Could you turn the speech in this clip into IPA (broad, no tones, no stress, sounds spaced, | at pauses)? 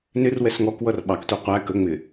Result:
n ɪ r w ɛ s ŋ ɔ k w ʌ r ɓ ɑ k tʷ ɛ qʷ æ k ə ŋ͡m ɪ